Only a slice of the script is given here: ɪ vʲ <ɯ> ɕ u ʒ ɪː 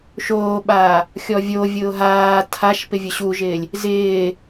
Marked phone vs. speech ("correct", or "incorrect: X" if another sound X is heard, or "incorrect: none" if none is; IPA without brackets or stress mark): incorrect: ʊ